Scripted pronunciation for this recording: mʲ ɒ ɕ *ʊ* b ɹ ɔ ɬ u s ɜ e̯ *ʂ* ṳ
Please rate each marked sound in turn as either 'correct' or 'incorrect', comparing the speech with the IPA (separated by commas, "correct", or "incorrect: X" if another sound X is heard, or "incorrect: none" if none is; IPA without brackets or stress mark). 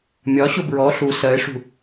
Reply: correct, correct